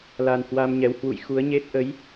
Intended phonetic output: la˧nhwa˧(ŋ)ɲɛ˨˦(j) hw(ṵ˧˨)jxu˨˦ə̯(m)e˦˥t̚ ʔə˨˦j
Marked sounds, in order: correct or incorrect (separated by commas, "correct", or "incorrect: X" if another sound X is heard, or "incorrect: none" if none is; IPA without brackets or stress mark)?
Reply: incorrect: m, incorrect: w, correct, incorrect: ɲ